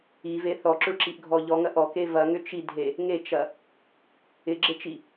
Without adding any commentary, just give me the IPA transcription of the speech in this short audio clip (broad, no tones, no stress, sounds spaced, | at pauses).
i v e θ ɔ ǁ ʏ ɭ ǁ i ʔ ɡʱ ɔ ʎ ɔ ŋ ɐ ʔ ɔ k e v ɐ ŋ ʏ t͡ʃ i dʱ e | ŋ e t͡ʃ ɐ | ɪ ɡ͡ǁ e t͡ʃ i